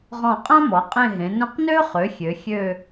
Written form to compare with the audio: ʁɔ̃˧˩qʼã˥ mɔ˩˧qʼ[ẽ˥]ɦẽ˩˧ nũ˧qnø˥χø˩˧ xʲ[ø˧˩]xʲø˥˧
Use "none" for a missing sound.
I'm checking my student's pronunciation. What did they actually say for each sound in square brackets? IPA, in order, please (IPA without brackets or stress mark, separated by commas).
ẽ˥˧, ø˩˧